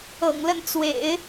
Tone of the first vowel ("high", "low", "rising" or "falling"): low